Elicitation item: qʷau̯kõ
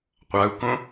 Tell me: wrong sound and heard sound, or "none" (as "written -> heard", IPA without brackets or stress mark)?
none